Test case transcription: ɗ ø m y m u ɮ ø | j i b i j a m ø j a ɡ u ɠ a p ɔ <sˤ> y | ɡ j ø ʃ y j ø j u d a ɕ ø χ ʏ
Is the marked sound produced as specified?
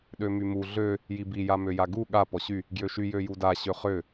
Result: no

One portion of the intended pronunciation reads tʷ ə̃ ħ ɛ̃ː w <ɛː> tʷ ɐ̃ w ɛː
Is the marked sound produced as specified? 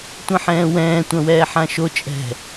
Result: no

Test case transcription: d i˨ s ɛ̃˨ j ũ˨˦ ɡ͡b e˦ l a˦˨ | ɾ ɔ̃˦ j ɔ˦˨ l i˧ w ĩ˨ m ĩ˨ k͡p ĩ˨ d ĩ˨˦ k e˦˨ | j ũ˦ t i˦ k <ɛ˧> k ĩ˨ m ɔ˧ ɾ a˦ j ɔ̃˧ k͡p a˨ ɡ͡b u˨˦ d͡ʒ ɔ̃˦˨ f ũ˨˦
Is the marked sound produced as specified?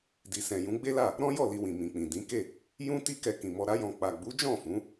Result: yes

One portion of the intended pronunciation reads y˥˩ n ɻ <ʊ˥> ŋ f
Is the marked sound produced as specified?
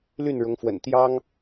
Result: no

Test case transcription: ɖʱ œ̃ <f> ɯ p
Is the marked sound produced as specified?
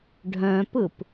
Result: no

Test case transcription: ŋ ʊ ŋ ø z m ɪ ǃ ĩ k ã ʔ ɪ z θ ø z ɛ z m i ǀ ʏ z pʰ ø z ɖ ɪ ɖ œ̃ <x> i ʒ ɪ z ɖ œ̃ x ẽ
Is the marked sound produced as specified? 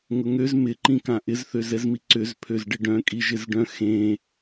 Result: no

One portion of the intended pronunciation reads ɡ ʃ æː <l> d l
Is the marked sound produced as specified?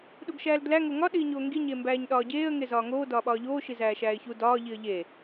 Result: yes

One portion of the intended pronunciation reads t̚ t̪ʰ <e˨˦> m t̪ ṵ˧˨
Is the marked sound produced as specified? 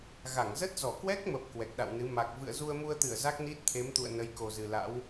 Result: yes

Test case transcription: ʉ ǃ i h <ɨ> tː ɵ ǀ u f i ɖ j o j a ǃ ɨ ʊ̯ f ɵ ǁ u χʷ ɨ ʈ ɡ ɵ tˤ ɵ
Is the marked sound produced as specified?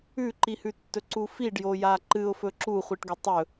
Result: no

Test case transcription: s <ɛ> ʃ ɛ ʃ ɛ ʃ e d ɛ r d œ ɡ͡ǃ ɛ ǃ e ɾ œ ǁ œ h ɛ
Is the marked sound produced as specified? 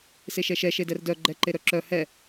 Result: no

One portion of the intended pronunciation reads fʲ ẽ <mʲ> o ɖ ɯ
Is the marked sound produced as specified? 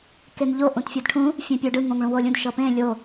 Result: no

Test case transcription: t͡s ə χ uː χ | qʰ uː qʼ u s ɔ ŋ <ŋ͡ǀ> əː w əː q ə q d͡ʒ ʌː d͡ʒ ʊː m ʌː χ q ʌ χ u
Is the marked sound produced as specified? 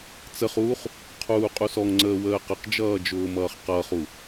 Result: yes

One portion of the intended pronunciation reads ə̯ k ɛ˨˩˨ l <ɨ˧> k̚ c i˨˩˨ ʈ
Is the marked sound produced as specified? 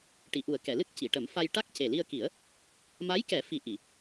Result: no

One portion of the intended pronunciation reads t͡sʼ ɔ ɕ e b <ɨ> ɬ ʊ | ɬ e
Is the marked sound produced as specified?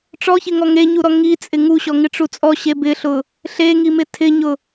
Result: no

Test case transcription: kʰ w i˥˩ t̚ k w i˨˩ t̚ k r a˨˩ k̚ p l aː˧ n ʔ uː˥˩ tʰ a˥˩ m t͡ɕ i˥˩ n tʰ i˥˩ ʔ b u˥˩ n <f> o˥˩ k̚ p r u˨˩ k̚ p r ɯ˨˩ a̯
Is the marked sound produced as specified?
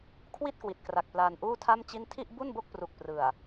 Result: no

